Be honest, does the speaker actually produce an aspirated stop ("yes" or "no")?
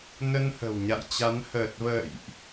no